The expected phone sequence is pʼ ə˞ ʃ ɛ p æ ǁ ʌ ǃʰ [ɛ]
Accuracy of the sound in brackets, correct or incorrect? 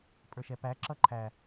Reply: incorrect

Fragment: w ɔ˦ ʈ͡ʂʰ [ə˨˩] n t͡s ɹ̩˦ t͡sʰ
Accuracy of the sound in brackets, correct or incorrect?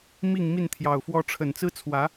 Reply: correct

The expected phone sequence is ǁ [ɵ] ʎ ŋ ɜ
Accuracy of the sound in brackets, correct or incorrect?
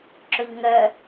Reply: correct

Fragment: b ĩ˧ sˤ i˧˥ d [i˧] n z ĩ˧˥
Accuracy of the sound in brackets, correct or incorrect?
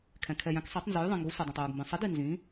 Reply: correct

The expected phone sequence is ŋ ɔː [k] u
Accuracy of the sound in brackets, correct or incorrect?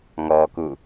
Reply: correct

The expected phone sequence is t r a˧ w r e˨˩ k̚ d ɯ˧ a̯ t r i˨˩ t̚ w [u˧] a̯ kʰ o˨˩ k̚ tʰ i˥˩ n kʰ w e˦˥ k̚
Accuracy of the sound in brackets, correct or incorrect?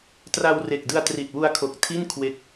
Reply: correct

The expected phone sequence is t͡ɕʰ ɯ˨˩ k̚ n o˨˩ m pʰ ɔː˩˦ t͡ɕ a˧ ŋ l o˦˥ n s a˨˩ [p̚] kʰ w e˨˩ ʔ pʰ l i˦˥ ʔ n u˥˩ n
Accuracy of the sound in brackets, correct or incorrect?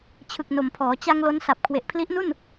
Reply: correct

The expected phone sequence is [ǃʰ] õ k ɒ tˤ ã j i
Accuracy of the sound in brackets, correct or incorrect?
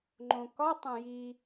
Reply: incorrect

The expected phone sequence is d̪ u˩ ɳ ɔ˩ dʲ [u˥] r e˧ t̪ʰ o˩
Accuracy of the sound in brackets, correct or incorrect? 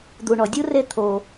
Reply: correct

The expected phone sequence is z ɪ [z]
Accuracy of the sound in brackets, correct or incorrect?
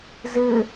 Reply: incorrect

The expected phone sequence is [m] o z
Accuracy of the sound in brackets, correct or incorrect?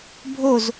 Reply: incorrect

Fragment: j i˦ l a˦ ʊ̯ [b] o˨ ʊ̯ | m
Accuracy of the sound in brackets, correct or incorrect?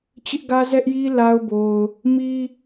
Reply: correct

